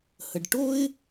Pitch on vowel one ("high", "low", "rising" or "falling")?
low